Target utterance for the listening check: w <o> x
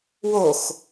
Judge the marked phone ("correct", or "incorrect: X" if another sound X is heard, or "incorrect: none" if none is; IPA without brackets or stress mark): correct